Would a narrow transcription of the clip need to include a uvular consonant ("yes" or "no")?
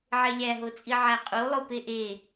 yes